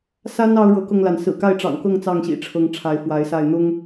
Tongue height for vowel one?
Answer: low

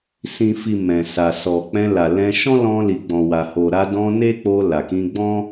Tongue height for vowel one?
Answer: high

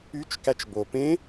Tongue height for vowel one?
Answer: high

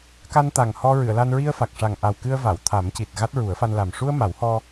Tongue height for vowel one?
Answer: low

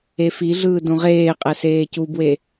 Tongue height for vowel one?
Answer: mid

